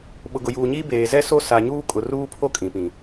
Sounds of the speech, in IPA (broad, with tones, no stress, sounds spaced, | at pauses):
ɓ ʊ˨ ɡ ʊ˨ j uː˨ ɲ iː˦ b eː˨ z ɛ˦ s o˦ s a˨ ɲ uː˦ kʼ ʊ˨ r uː˦ pʰ o˦ kʼ ĩ˨ p ĩ˨